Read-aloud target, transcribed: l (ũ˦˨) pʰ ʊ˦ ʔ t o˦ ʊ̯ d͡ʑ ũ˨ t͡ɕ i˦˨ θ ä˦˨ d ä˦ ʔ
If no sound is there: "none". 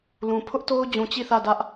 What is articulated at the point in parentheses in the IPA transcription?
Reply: ũ˨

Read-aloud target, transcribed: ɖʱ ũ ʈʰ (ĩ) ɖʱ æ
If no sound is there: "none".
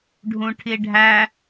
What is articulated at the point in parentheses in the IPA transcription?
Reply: i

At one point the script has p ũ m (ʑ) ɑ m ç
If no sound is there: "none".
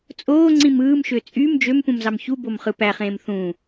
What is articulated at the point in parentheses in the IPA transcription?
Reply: z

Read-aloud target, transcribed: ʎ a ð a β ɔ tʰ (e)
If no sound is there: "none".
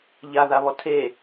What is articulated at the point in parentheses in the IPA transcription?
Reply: e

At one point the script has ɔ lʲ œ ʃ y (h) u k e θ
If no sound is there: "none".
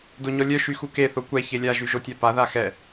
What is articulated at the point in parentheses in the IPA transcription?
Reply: x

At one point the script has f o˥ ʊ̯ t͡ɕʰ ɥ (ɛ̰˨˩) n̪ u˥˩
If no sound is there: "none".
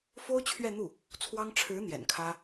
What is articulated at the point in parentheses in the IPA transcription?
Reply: ɛ˥˧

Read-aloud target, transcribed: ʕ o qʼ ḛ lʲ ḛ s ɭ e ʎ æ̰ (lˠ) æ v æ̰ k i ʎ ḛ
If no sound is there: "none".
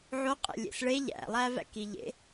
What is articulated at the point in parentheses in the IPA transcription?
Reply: lˠ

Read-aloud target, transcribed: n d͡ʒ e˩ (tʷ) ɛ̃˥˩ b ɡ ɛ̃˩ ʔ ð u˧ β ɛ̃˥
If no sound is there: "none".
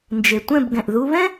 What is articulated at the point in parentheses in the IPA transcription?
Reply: tʷ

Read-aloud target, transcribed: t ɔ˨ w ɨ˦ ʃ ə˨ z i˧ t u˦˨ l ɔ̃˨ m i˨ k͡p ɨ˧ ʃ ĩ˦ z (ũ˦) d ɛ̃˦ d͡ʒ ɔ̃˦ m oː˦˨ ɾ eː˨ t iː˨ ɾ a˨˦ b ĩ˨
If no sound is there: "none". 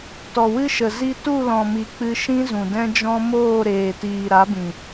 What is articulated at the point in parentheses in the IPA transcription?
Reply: ũ˨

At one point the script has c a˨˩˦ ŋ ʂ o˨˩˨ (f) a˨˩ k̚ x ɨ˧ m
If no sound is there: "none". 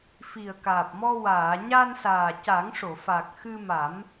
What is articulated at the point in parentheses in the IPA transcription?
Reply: f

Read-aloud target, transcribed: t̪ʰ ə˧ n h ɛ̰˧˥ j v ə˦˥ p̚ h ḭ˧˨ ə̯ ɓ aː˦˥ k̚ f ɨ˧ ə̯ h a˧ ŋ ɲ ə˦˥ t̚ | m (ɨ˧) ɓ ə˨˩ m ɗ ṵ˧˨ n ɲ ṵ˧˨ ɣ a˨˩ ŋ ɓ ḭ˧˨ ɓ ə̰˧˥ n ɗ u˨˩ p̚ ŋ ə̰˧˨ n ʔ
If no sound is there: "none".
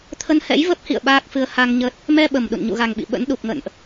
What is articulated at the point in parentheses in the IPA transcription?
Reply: ɛ˧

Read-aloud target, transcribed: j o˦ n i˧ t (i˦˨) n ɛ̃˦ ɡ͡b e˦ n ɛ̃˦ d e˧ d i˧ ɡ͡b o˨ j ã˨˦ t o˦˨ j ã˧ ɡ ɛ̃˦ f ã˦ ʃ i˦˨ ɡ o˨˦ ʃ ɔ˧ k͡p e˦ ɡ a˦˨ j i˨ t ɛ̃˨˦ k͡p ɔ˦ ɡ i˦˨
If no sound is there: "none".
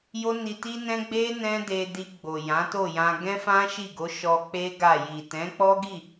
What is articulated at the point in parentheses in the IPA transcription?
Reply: i˦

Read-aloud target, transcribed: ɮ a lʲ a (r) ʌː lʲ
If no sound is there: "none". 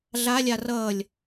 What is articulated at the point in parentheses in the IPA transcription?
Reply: r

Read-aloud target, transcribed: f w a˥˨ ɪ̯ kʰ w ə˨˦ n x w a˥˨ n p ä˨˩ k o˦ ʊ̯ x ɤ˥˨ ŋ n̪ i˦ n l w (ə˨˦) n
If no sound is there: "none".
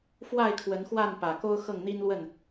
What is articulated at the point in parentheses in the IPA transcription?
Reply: ə˥˨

